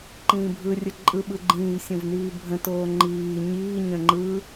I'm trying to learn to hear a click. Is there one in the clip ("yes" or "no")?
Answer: yes